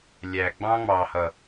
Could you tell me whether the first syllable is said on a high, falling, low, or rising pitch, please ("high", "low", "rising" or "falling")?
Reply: low